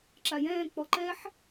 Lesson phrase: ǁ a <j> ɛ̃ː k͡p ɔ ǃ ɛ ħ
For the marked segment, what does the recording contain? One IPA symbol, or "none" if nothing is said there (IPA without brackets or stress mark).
j